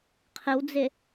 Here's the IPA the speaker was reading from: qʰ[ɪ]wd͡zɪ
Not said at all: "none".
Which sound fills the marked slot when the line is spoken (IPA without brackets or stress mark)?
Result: ɪ